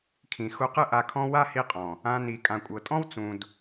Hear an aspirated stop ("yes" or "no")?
yes